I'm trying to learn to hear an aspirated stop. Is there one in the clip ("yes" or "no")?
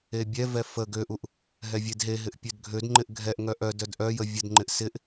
no